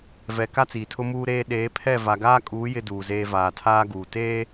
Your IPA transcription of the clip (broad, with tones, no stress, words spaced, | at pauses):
vɛ˨ ka˦t͡siː˨tʰʊ˦ muː˦ɾeː˦ ɗeː˨˦pʰɛ˦˨ va˨ɡaː˦kʼuː˨˦ jɪ˦duː˨zeː˦vaː˨ tʰaː˦ɡuː˨ teː˦